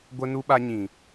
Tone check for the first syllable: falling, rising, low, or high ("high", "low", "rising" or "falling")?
high